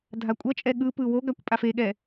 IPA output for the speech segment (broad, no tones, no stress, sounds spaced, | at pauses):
dʱ a kʷʼ ʌ t͡ʃʼ ɛ ɠ ɯ p ɯ w o ɡ a kʷ pʼ a f e ɠ ɛ